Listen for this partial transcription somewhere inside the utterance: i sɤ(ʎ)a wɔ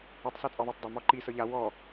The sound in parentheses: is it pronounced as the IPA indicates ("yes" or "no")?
yes